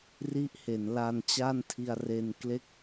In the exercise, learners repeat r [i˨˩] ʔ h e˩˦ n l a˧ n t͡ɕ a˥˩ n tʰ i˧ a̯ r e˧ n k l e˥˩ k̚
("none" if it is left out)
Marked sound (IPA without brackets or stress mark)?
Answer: i˦˥